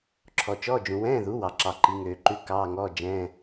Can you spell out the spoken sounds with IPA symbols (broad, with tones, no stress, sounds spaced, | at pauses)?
ǁʰ ɔ˨ t͡ʃ ɔː˧˥˧ d͡ʒ ũ˨ w ɛ̃ː˧˥˧ ð u˩˥ w ɑ˨ ǁ ɑ˨ ǃ i˩˥ ŋ øː˨ ǃ ʉ˧˥˧ k ɑː˧˥˧ ŋ ɔː˧˥˧ d͡ʒ ɛ̃ː˧˥˧